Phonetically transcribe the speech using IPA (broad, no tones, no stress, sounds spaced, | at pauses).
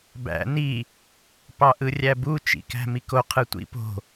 b æ̰ n i | p ɑ ʔ ɯ rʲ æ b u t͡ʃ ḭ k æ̤ m i k o qʰ ɯ tʷ ḭ p o̤